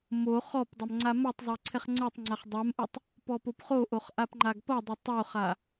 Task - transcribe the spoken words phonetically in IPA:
m o χ ɔ p dˤ ʌ m ŋ͡ǀ a m o tˤ zˤ ɛ ǀʰ ɛ χ ŋ͡ǀ ə˞ tˤ ŋ͡ǀ a χ dˤ a m ʔ u tˤ | p ɔ p o p χ o ʔ o χ ʔ a p ŋ͡ǃ a ɡ p ʌ dˤ ʌ tˤ o χ a

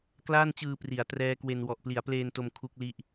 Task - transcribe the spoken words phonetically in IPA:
k l aː˥˩ n t͡ɕ ɯː˧ p r i˩˦ a̯ t r ɛː˦˥ k w e˧ n w ɔ˨˩ ʔ p l i˩˦ a̯ p l eː˧ n t o˧ m kʰ u˦˥ k̚ l i˦˥ ʔ

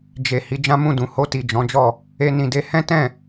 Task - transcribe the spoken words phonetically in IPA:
d͡ʒ e˨ h i˧ d͡ʒ ã˦ m ũ˦˨ d ũ˨˦ h o˧ t i˨ d͡ʒ ɔ̃˨˦ d͡ʒ ɔ˦˨ | e˧ n ĩ˨ d e˧ h ɛ̃˦ t ɛ̃˦˨

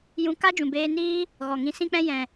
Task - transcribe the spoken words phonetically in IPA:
j ũ˧ k a˦ d͡ʒ ũ˨ b eː˧ n iː˦ | ɣ ɔ˨ ŋ ĩ˧ s ĩ˦ k͡p ɛ̃˦ j ɛ̃˨

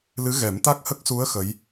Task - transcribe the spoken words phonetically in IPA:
l ɨ˧˥ ɣ ɛ˨˩˦ m t̪ a˦˥ k̚ h ə˦˥ k̚ s u˧˥ ə̯ x ə˧˥ j

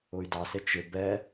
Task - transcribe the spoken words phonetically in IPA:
ʊ y̯ d ɑ s ɪ t͡ʃ ɪ b ɛ

